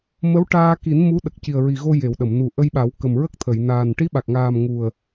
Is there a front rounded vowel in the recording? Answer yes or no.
no